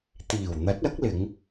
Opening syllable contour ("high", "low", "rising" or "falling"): low